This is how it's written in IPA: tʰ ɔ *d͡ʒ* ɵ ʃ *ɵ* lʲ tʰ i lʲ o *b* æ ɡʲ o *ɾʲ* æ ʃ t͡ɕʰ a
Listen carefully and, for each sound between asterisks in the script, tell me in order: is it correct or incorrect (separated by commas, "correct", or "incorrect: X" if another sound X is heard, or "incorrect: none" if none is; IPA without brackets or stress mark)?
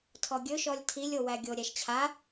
incorrect: ɡʲ, incorrect: ɔ, incorrect: w, correct